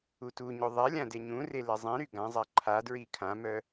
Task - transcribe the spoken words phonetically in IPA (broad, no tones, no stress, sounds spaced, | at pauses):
u t u ɲ o ðˤ ɛ lʲ ã d e ɲ ũ r e l ɛ zˤ ẽ ɾ y ɡ ã zˤ a ǃʰ a d ɹ i kʰ ã m œ